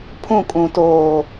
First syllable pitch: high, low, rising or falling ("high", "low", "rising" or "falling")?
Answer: falling